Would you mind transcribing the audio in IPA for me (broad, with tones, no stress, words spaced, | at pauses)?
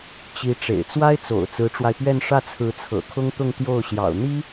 t͡ɕi˧˥ ʈ͡ʂḛ˨˩ɪ̯ t͡swa˥ɪ̯t͡so̰˨˩ʊ̯ t͡sɹ̩˧˥ʈ͡ʂwa˧ɪ̯pɥɛ˥˧n ʂä˥˩t͡sʰɹ̩˧˥ t͡sʰɤ̰˨˩kʰʊ˥ŋt̪ʊ˥˧ŋ t̪jo˥˩ʊ̯ɕjɑ̰˨˩ʊ̯ n̪i˥